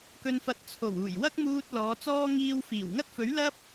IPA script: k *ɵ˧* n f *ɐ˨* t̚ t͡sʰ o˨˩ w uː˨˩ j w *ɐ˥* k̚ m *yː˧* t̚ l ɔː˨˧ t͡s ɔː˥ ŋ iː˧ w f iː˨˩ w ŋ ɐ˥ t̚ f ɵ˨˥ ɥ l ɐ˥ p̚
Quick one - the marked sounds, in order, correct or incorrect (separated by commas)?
correct, incorrect, correct, incorrect